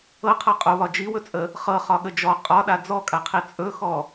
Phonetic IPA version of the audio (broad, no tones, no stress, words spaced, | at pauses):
ɤqʰɤ qʼoβɒ d͡ʒiwɵt͡sʼə | χɤχɒɠə d͡ʒɔ qʼɒɗa d͡zɔkʼaqʰi t͡sʼɵxɔ